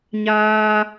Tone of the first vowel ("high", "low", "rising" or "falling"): high